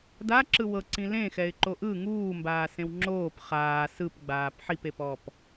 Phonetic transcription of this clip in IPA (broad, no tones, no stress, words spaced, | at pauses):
daǁɯ wɤǀĩ lẽxɛɪ̯ǃo ʔɯ ŋuːmbaːsẽw ŋ͡ǁoːp χaː sɯpɡ͡baːp ħipepɔp